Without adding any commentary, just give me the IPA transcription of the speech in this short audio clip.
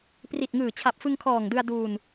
pri˨˩t̚ŋɯː˨˩t͡ɕʰa˨˩p̚ fɯ˧ŋkʰɔː˨˩ŋdɯ˧a̯ duː˧n

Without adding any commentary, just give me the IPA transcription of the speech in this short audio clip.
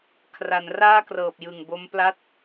kʰra˩˦nraː˥˩krɤː˨˩p̚jɯ˨˩ŋ bo˦˥mpla˥˩t̚

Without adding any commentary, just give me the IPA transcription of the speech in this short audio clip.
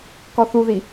kɔθuði

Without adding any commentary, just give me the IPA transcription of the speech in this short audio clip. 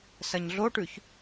sɐɲɮoʈʉç

